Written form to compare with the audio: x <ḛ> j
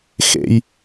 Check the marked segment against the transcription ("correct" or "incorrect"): correct